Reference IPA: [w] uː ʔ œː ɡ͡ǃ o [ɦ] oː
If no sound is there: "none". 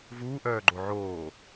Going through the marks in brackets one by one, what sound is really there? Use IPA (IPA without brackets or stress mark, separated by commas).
v, ʕ